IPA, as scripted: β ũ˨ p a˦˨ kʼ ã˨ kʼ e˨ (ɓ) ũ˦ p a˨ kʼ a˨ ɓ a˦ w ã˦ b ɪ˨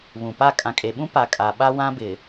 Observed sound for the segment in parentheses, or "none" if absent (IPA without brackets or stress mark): ɓ